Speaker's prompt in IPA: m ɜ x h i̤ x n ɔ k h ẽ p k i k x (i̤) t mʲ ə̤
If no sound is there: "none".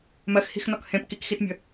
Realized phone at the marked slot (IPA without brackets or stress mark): i